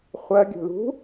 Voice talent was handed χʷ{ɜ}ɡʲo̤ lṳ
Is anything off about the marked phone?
no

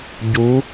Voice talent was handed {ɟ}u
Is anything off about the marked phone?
no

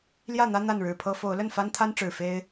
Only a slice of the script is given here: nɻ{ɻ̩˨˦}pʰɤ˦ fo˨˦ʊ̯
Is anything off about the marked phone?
yes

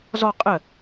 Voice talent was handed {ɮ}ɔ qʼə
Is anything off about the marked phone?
yes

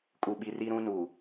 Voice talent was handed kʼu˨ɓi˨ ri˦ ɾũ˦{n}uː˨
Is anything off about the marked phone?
no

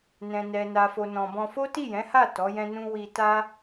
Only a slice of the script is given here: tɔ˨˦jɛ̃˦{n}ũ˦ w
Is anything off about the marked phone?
no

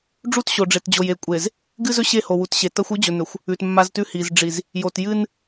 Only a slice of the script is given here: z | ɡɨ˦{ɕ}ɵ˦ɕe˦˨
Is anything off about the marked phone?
yes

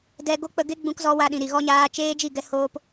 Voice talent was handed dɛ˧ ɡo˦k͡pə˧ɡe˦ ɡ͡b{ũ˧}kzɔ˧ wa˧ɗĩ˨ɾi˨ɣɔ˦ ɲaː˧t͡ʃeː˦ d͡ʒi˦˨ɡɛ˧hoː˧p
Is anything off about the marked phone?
no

